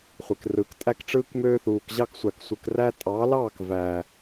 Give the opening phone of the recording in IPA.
χʷ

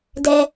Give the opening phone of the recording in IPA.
d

